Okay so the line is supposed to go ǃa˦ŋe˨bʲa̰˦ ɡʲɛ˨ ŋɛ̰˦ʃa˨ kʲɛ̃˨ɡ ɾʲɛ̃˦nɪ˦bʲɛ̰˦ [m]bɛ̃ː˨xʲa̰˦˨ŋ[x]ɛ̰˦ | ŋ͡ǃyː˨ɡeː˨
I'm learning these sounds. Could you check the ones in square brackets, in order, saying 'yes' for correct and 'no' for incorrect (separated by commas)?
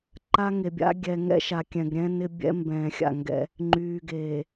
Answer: yes, no